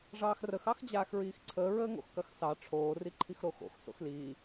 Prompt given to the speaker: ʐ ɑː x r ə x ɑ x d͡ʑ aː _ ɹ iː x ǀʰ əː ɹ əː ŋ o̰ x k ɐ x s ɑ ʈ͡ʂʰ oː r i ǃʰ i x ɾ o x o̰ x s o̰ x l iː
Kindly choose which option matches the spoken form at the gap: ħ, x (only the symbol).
x